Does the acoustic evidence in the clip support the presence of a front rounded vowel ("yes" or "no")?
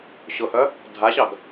yes